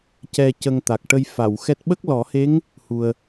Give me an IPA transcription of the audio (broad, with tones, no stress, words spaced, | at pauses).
cɛ˧cə˧ŋt̪a˨˩k̚ ʈə˧jfa˨˩˨wxɛ˦˥t̚ ɓə˦˥k̚lɔ˨˩˦he˧˥ŋ | hu˨˩ə̯